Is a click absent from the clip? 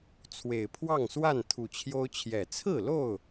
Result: yes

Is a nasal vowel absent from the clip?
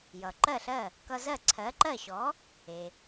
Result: yes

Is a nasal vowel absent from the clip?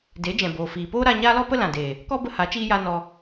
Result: no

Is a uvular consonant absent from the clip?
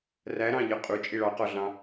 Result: no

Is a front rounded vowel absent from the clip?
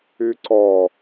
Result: no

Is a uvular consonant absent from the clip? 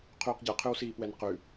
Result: no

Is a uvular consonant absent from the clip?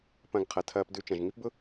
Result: no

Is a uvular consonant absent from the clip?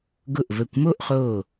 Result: no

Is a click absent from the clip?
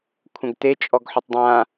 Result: yes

